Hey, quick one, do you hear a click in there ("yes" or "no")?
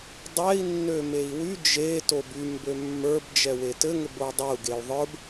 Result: no